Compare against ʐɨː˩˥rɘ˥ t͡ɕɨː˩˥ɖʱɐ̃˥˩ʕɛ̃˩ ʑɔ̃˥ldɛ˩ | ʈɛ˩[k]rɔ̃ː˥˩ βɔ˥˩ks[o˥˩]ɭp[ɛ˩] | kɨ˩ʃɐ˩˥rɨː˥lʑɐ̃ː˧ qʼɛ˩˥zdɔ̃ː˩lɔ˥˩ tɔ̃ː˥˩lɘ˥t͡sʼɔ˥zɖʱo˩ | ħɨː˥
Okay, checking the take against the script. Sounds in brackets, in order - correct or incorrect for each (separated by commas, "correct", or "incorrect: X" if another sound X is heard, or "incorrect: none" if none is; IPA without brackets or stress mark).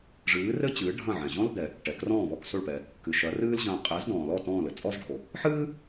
correct, correct, correct